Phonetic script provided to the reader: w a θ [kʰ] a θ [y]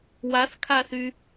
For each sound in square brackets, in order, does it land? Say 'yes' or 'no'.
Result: yes, yes

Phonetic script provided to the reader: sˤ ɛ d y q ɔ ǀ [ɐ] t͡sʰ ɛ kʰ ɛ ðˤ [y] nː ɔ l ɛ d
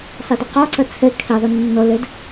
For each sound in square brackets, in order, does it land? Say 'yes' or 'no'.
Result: yes, yes

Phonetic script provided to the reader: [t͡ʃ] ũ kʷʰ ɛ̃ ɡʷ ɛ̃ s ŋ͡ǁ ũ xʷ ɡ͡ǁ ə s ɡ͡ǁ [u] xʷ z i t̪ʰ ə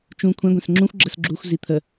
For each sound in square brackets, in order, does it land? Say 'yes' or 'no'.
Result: yes, yes

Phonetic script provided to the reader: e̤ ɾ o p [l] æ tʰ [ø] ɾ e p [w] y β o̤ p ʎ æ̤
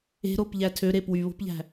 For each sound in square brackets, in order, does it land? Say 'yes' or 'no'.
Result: no, yes, yes

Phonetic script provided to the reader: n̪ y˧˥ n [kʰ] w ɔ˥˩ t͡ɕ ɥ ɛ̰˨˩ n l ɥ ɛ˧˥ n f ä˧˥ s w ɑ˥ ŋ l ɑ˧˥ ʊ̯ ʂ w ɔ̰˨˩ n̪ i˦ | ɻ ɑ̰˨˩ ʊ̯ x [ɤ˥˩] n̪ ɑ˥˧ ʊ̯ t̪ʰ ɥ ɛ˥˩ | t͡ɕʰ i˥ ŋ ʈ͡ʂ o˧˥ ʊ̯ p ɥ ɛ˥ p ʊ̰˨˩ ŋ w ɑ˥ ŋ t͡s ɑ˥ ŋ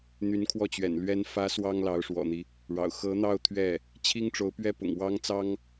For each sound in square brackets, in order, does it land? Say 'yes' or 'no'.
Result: yes, no

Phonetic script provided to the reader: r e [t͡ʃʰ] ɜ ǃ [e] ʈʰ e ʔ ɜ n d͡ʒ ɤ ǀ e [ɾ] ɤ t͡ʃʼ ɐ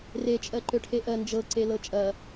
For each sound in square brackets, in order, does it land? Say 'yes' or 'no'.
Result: no, no, no

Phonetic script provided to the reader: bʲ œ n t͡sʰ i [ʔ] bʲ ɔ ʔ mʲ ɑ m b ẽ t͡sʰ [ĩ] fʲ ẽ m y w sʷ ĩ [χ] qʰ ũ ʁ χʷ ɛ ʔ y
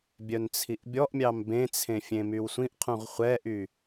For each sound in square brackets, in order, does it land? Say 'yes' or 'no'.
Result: yes, no, no

